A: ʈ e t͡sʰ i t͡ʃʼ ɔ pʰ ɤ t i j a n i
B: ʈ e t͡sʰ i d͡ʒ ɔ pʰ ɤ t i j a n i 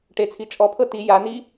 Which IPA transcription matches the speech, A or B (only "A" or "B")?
A